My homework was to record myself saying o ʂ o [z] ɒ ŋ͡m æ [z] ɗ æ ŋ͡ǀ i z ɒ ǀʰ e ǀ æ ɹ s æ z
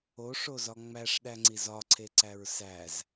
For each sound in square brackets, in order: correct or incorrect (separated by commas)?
correct, incorrect